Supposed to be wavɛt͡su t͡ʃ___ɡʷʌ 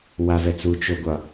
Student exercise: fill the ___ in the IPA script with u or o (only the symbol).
o